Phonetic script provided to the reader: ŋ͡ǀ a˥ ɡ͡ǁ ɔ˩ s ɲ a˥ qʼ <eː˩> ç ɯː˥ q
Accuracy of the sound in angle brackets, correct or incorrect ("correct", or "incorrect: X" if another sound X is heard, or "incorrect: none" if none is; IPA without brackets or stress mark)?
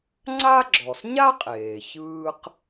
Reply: correct